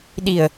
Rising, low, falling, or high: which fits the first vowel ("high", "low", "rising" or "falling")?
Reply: low